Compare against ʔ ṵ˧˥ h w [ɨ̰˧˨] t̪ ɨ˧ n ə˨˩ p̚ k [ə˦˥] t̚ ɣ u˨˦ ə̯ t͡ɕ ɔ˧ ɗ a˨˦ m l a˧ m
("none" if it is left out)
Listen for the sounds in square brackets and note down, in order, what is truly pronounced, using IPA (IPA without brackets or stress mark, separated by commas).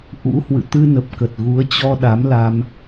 ɨ̰˧˨, ə˨˩